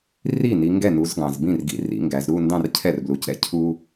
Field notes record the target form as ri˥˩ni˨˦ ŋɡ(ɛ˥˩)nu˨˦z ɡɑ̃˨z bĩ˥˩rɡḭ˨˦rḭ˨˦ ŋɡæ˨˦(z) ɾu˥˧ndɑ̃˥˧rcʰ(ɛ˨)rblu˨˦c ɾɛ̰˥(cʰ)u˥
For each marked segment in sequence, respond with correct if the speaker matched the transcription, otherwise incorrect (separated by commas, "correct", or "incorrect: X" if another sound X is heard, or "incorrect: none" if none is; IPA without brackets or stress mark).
correct, correct, incorrect: ɛ˥˩, correct